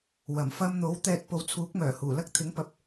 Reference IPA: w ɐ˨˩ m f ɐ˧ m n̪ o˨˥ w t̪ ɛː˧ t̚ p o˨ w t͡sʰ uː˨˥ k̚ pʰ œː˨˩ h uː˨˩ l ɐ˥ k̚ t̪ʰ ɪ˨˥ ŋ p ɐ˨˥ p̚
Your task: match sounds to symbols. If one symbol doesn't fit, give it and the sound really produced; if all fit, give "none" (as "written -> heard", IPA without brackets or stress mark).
pʰ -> m